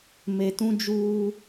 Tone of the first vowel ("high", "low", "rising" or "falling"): low